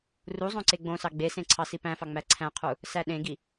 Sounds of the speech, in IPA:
r u zˤ õ ǀ e ɡ͡b õ s ɑ ɡ͡b e s ẽ ǀʰ ɑ s i p æ̃ f ɑ ŋ͡m æ ǀʰ æ̃ qʰ u | s æ ɗ ẽ ɡ i

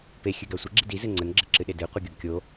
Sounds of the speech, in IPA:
p e xʲ ʉ ɡ a sʷ ə ɡ͡ǁ i d i z ɘ ŋ͡ǀ ə n ɡ͡ǁ ɘ ǁ ɨ ɗ e d ɨ i̯ qʷ ɨ ɡʲ o ɡ kʲ o

